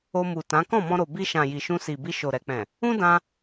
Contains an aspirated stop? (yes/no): no